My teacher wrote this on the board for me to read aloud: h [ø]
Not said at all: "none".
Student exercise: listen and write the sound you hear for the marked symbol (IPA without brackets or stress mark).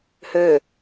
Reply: ø